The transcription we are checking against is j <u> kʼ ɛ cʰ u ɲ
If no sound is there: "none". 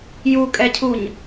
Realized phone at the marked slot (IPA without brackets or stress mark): u